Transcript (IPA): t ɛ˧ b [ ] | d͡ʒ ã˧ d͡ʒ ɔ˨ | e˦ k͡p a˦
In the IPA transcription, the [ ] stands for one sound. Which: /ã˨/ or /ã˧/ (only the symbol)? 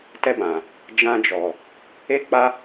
ã˨